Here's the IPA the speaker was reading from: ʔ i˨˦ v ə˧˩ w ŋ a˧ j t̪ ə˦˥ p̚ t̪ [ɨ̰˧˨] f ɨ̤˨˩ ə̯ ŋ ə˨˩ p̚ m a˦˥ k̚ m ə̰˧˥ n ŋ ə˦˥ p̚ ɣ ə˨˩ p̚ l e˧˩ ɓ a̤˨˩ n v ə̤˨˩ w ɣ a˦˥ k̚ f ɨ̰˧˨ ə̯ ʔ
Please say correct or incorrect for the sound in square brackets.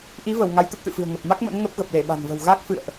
correct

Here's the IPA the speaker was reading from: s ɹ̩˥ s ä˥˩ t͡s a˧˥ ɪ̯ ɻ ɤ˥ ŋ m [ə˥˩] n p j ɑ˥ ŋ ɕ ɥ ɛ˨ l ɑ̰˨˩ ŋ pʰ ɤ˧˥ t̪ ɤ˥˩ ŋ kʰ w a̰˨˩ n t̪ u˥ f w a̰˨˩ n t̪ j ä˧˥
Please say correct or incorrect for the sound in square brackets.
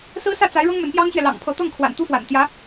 incorrect: ə˧˥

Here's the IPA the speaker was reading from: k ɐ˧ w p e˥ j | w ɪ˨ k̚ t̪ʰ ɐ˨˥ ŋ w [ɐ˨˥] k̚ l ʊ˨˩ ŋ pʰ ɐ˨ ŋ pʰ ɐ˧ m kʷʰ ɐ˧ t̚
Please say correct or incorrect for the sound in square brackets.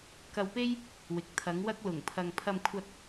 incorrect: ɐ˥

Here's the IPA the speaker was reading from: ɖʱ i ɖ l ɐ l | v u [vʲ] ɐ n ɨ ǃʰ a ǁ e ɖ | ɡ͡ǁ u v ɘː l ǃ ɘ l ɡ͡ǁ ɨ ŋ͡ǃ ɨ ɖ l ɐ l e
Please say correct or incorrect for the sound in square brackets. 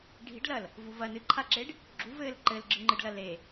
incorrect: v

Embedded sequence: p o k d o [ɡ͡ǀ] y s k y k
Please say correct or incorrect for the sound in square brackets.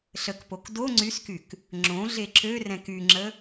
incorrect: ŋ͡ǀ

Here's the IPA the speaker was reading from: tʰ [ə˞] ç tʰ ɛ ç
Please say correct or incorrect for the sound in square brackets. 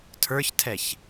correct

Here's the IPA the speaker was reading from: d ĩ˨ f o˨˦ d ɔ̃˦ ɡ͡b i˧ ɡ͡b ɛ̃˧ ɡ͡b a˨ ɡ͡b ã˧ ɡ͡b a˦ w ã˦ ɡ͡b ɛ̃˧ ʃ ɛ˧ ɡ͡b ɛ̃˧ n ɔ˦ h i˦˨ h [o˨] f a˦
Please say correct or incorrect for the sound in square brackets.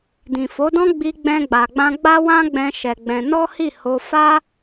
incorrect: o˧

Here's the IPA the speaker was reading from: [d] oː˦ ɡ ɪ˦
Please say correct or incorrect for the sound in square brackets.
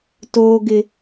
incorrect: t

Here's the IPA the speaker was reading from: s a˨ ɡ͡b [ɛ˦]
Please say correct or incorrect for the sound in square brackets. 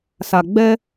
correct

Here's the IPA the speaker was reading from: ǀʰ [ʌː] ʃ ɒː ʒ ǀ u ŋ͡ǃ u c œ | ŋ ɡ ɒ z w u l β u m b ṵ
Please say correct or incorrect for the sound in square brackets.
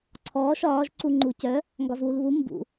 incorrect: ɔː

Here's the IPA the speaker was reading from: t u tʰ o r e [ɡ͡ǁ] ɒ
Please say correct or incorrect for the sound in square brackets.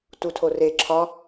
incorrect: ǁʰ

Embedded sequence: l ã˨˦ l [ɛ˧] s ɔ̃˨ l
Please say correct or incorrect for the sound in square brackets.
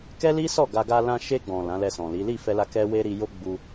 correct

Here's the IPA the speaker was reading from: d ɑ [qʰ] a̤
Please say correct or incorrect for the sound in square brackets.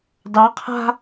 correct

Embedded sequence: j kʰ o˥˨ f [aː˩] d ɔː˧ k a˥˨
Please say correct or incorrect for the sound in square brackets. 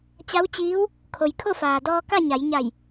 correct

